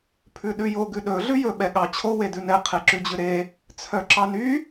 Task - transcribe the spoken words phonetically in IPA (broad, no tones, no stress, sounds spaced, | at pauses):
pʰ ʉ ɗ ʉ j o ɡ ʉ ɗ ɵ ɮ ʉ j ɵ ɓ ɛ ɠ ɑ t͡ɕʰ o w e d ʉ n ɛ qʰ e ǁ ʉ d͡ʑ ʉ ɾ e | t͡sʰ œ ǁ ɑ n y